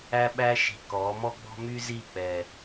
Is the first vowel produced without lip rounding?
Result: yes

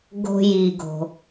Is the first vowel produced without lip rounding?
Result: no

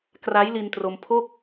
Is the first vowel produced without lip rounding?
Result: yes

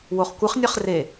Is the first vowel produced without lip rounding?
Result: no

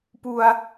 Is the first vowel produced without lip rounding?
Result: no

